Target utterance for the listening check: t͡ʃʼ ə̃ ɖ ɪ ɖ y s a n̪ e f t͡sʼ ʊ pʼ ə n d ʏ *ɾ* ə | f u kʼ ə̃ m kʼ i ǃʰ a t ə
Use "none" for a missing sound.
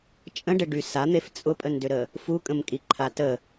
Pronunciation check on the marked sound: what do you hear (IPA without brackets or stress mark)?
ɾ